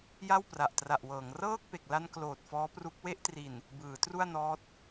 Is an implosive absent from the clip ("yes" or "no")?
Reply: yes